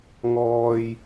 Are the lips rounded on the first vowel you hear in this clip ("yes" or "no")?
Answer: yes